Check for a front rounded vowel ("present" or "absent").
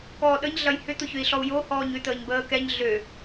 present